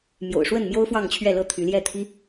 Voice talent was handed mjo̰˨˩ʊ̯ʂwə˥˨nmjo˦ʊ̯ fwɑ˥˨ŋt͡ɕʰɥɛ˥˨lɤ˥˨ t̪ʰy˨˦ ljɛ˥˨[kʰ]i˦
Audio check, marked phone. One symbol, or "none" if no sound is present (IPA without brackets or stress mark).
t̪ʰ